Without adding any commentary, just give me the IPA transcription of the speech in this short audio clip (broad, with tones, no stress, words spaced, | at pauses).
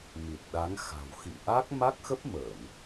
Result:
mi˨˩t̚ɗa˨˦ŋ xa̤˨˩w xḭ˧˨ ʔa˦˥k̚ ma˦˥k̚xə˦˥p̚məː˧˩˨n